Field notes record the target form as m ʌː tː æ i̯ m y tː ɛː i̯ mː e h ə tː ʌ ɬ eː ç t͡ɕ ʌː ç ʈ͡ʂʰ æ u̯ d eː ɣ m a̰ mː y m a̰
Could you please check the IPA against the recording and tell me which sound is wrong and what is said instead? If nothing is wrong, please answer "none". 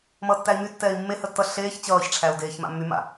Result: ɣ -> ç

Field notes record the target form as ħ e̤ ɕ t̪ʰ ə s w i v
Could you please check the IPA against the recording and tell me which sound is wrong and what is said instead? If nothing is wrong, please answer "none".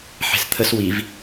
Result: ɕ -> s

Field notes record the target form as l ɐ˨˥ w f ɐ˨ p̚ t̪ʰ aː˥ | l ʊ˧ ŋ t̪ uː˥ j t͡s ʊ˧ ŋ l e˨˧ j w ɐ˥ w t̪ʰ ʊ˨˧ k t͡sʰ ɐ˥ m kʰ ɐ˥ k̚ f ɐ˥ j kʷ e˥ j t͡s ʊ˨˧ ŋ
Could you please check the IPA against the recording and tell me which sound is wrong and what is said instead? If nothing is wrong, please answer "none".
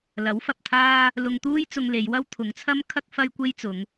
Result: k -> ŋ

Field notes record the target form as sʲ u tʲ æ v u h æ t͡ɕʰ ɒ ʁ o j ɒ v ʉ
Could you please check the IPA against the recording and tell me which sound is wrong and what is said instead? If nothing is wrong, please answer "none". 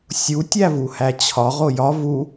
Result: ʉ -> u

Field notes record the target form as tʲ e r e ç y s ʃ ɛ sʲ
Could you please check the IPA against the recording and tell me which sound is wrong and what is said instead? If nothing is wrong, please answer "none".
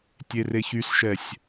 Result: none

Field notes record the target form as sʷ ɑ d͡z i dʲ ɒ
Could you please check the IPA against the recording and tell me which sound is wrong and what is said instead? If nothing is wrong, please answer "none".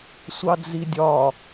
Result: none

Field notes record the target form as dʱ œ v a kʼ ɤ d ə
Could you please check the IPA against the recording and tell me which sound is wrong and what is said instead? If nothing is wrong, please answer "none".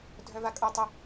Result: d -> tˤ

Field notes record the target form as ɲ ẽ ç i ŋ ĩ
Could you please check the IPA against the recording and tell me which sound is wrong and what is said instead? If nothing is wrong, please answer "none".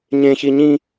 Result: ŋ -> ɲ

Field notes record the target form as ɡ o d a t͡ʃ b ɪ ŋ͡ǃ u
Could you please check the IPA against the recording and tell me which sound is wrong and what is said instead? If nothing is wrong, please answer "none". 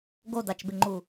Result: none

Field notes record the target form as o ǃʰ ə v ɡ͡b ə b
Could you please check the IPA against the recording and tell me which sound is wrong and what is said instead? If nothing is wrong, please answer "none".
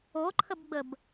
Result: v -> b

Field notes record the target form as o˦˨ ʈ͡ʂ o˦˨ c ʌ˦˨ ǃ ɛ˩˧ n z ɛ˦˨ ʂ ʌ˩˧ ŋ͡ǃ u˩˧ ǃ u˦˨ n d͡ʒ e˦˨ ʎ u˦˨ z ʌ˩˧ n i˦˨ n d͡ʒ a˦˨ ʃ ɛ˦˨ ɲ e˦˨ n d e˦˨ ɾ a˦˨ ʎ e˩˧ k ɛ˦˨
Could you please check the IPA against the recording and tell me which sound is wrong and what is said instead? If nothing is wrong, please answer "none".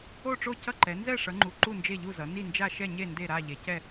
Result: k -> c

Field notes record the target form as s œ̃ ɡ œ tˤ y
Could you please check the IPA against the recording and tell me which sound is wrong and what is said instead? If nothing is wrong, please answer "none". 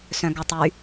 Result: none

